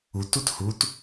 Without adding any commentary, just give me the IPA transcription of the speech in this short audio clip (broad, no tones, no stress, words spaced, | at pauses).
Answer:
ut uthut